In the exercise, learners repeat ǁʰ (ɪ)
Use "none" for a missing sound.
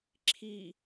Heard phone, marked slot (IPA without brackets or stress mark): i